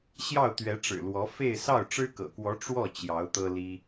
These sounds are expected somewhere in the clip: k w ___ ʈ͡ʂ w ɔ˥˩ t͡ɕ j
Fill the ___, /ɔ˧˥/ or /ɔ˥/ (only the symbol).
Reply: ɔ˧˥